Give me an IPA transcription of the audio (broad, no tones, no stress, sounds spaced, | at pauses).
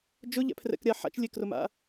d͡ʒ ʊ ʎ ɛ̰ pʰ r ɛ̰ k ɾʲ a ħ a̰ t͡ʃ lʲ e k r ʊ m a̰